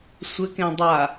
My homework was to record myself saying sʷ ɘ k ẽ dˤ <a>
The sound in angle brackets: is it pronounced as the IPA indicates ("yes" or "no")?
yes